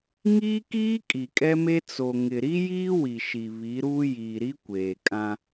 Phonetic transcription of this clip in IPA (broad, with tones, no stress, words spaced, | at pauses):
ŋiː˦kiː˦ kʼi˨kʼɛ˦me˦ t͡so˨ŋɪ˨ ɾi˦jiː˦ wi˨ʃi˨ βi˨˦ɾuː˦ jiː˨ɾi˦ kʷeː˨kʼã˦